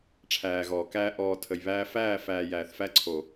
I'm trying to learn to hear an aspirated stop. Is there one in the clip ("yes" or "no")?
yes